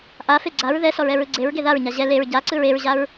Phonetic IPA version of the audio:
ʔ a f e ɡ͡ǀ a ɹ ð ɛ s ɔ ɹ ɛ ɹ ɯ ɡ͡ǀ e ɹ ɡ e ð a ɹ ɲ a ʑ ɛ l e ɹ ɟ a ǀ ɯ ɹ e ɹ ʑ a ɹ

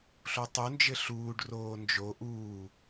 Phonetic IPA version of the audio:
ɬ o tˤ u n d͡ʒ ɘ ɬ uː ɖ r oː n d͡ʒ o ʔ uː

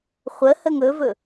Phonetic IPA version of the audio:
χʷ ə h ə ŋ ɵ v ɵ

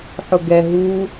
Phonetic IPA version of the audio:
ħ ʊ ɡ ɛ ɦ u

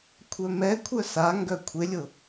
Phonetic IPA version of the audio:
kʷʰ œ m ɛ kʷʰ œ s a ŋ ɡ œ kʷʰ ɪ lʲ ʊ

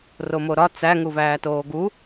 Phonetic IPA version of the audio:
r o m o ɾ ɒ t͡s æ ŋ u v æː t oː ɡ u

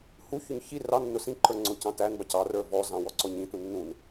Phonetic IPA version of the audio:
h u ç ʊ ɲ ç i r ɑ nː ʊ s ĩ ǃ ə˞ ŋ͡ǀ ʊ c ɑ̃ t æ n b ɑ c ɑ r ə˞ v ɔ z ɑ̃ w ɔ ǀ ɔ ɲ ĩ t ũ nː ũ n

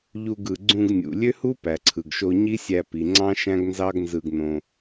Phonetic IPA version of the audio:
ʎ u˧ ɡ ɯ˨ ɡ͡ǀ ũ˧ ɡ nʲ ṵ˨ lʲ ø˦ h u˦ p æ˨ ǀʰ ɯ˨ ɡ ʃ o˧ ɲ i˦ sʲ æ˧ p i˨ ŋ͡ǀ ɑ̃˦ ʃ æ̃˦ ɡ n z ɑ˦ ɡ n z ɯ˧ ɡ n õ˧

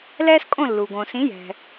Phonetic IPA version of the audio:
l ɛː˥ s kʼ õ˥˩ lː u˩ ɡ õ˩ s ĩ˩˥ j ɛ̤˩

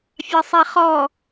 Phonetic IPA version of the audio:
fʲ ɑ sˤ ɛ χ ɔ

